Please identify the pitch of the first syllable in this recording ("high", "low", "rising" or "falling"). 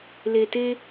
low